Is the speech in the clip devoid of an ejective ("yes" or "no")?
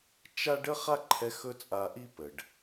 no